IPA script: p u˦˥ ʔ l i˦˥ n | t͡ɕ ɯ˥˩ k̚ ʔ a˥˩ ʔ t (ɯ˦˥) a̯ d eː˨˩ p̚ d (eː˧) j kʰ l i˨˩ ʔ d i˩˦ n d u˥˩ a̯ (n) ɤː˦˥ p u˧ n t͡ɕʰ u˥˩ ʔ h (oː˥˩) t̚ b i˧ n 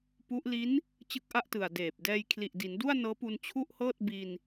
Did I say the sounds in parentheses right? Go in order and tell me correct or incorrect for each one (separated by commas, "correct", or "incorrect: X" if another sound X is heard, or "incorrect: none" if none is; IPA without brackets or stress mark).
incorrect: ɯ˨˩, incorrect: ɛː˧, correct, incorrect: ɤː˥˩